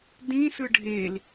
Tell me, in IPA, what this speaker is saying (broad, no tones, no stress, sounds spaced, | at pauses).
d ĩ s ɯ ɖʱ e l